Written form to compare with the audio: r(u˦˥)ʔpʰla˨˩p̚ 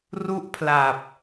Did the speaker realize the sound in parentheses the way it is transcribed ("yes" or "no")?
yes